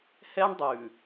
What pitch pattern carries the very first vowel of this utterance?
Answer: high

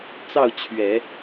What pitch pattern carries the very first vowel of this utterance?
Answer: falling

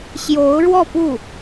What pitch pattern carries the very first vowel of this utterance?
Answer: rising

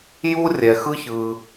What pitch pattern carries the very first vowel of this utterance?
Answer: high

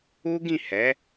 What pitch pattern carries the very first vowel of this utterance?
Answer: high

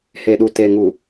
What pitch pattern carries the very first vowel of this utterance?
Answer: low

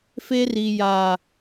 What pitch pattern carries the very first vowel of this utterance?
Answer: high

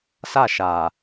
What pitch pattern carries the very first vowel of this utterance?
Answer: falling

